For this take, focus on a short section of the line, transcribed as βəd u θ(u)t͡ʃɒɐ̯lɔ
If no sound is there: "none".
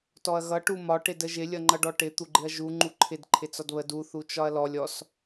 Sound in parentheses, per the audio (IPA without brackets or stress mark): u